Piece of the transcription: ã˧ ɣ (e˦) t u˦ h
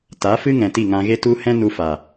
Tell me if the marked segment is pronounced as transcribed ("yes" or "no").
yes